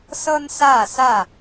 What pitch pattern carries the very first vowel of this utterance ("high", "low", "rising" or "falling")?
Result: high